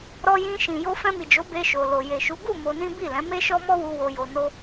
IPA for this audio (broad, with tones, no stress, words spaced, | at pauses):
ɾɔ˧jĩ˧ ʃĩ˨ jo˧fɛ̃˧mi˨d͡ʒo˨˦ be˧ʃo˨ lo˨je˨ʃu˨˦ ɡu˦˨ mo˧nĩ˦ bi˦˨lɛ̃˨˦ me˦ʃɔ˦mɔ˦wu˧ wo˧jo˧no˦